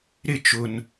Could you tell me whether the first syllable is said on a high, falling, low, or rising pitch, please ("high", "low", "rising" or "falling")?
falling